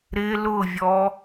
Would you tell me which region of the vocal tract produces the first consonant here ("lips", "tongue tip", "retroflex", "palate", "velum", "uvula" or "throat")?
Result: tongue tip